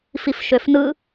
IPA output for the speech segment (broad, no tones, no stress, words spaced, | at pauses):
fifʃøfnɯ